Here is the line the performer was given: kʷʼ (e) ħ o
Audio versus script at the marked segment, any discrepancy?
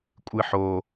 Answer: yes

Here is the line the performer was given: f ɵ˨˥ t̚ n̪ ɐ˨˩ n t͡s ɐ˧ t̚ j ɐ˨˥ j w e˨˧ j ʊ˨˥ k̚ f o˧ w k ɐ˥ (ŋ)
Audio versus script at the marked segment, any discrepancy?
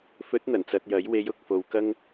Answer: no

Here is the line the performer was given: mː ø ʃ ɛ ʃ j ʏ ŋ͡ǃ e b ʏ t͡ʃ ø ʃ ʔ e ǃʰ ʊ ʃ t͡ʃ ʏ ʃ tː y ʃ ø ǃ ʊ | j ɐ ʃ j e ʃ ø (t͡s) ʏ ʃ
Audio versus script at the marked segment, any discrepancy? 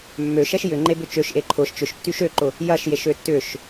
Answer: yes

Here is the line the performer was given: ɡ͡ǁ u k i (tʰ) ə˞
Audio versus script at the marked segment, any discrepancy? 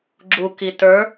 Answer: yes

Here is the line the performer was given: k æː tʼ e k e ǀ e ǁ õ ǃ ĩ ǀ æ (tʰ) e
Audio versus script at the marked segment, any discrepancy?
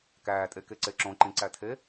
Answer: no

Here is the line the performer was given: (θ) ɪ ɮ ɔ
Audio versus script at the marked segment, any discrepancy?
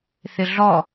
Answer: no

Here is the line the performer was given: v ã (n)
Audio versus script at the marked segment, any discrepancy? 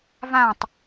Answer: yes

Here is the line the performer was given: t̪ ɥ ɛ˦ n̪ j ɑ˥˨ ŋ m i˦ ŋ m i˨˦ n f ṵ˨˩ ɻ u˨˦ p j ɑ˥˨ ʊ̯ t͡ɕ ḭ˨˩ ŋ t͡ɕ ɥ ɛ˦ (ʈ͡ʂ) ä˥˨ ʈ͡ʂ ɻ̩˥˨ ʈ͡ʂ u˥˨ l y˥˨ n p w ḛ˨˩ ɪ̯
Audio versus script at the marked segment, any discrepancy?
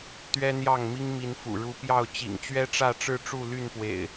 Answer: no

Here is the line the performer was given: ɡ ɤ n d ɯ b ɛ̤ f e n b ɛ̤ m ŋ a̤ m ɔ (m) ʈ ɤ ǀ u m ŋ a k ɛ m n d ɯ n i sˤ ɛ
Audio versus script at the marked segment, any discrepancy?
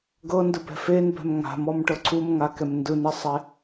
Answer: no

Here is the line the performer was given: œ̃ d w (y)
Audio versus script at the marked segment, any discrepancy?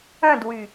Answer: no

